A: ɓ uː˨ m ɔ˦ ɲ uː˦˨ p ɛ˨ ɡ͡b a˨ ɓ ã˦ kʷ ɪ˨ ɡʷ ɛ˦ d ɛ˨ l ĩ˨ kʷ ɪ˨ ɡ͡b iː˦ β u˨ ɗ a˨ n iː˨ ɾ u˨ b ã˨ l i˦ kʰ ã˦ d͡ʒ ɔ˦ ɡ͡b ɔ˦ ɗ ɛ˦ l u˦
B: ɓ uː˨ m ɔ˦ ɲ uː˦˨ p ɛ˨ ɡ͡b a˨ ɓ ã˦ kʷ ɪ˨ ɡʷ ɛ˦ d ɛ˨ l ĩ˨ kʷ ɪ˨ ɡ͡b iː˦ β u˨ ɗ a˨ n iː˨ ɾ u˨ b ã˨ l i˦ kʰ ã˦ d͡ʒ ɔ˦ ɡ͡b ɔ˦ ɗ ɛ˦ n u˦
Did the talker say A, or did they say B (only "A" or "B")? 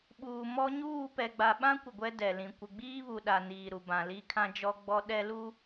A